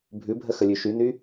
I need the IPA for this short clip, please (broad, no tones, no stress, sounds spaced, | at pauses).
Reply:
bʱ ʉ bʱ ə x ə lʲ ʉ ʃ y n y